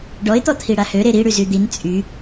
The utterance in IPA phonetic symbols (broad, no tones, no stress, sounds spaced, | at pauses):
ɖ ɔ ɪ̯ t̪ ɔ t̪ʰ i ɽ a h ø ɾ e ɾ i ɽ y z y d̪ i n t͡sʼ y